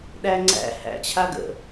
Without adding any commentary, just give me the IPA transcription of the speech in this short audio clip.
ɗ æ ŋ͡ǀ æ̰ h æ̰ t͡ɕʰ a ɡ ə̰

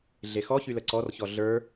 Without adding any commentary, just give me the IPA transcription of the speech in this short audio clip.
ɮ e x ɔ ç y l ə ǀ ɔ r ç ɔ ɮ ə˞

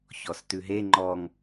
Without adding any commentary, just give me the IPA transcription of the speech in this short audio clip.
ç ɔ s t ʉ ɦ e ŋ͡ǃ ɔ ŋ

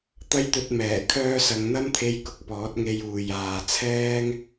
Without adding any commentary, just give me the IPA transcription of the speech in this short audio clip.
t̪ ɐ˥ j t̪ ɵ˧ t̚ m ɛː˨˩ kʰ œː˧ s ɐ˨˧ ŋ n̪ ɐ˥ m t̪ʰ e˧ j k ʊ˧ k̚ p ɔː˨˥ t̚ ŋ e˧ j uː˨ j aː˨ t͡sʰ ɛː˥ ŋ

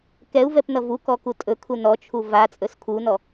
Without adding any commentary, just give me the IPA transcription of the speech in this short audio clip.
k ɛ u̯ v ɛ p n ʌ v u k ɔ k u tʼ ɵ kʰ u n ɔ t͡ʃʰ u v a t͡sʼ ɵ s kʰ u n ɔ

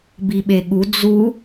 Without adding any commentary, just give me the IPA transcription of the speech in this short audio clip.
b i ɓ e ɠ u d͡z u

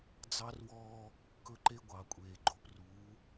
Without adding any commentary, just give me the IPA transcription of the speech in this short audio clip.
d͡z ɑ˦ r w ɔː˦ | k ɵ˦ ǃ e˦ ɡʷ ɑ˨ kʷʼ eː˨ ɡ͡ǃ o˨ p r uː˨˦

